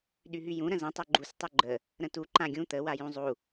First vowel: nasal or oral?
oral